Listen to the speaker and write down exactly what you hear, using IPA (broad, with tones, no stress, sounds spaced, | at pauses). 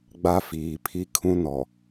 ɡ͡b a˦ f iː˨ pʰ i˦ kʰ ũ˦ n ɔ˨